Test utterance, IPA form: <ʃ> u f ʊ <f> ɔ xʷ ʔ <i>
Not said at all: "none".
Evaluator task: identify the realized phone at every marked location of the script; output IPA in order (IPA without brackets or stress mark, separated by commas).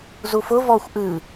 z, v, ɨ